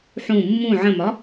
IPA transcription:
ħ ũ mː ũ ʕ ə̃ m ɒ

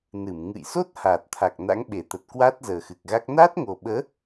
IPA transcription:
n ɨ˧˩ m ŋ ɨ̰˧˨ j s o˦˥ t̚ h aː˨˩ t̚ t̪ʰ a˨˩ k̚ n a̰˧˥ ŋ ɓ e˧˩ t̪ ə˨˩ t̚ k w a˦˥ t̚ z əː˨˩ x ɨ˨˩ k̚ ɣ a˦˥ k̚ n aː˦˥ t̚ ŋ o˨˩ ɓ əː˨˦

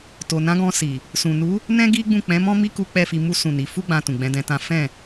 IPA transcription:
t o˨ n ã˨˦ ɡ ɔ̃˧ s i˨ | s ũ˨ n u˨˦ | n ɛ̃˦ ɡ i˦ ɡ͡b ũ˦˨ k͡p ɛ̃˨˦ m ɔ̃˦ m i˦ k u˦ k͡p ɛ˦˨ f i˧ m u˦ s ũ˦˨ n i˨˦ f u˦ ɡ͡b ã˧ t ũ˨ ɡ͡b ɛ̃˨˦ d ɛ̃˧ t ã˦ f ɛ̃˦˨

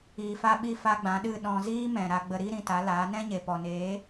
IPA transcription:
iː˨ f a˧ ɓ i˧ f a˧ ɡ͡b ã˨˦ ɗ ɨ˦˨ ɗ ɔ̃˧ z iː˦ m ɛ̃˨ ɾ a˧ ɡ͡b ə˧ ɾ i˦ ɾ ĩ˧ t a˨˦ l aː˨˦ n ɛ̃˦ ɲ e˨ p ɔ˨ n eː˨˦

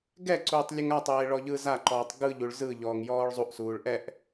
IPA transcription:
ɡ ɛ ǀ uː tˤ lʲ ɯ ŋ a tˤ eː ɭ ɔ ʎ ɯ z a ǃ ɔː tˤ ɡ ɯ ʎ u ɭ z ɯ ʎ ɔː ŋ j ɔː ɭ zˤ u ʔ s uː ɭ ʔ ɛ ʔ

